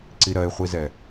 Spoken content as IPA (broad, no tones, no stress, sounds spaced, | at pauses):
ǀ i ɾ ɜ ɪ̯ χʷ i z ɛ